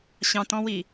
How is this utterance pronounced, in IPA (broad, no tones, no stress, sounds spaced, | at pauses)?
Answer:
ɕ ɑ̃ t ɔ̃ w i